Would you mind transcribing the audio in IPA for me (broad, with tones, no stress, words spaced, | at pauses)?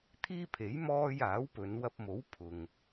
t̪ʰiː˥pʰe˨˥j mɔː˧j aː˨˥wpɵ˨˧n wɐ˧p̚mo˨˥w pʰʊ˨ŋ